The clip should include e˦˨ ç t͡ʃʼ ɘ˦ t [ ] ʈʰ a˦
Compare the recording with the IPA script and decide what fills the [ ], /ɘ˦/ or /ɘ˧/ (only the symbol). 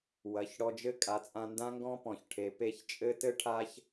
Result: ɘ˦